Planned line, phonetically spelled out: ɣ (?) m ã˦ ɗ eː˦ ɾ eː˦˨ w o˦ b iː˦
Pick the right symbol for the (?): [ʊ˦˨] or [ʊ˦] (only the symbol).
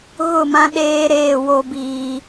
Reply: ʊ˦˨